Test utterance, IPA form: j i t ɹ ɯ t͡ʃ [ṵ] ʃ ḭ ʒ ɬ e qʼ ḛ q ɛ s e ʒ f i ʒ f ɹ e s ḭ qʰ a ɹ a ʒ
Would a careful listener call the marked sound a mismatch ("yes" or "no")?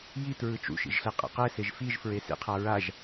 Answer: no